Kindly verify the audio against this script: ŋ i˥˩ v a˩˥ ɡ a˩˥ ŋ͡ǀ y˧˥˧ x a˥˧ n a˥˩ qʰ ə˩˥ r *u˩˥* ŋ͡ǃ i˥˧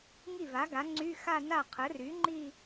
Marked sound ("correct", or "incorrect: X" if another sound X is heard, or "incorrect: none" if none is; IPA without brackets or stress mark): incorrect: y˩˥